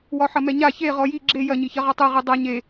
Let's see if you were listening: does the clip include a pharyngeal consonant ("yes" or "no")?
yes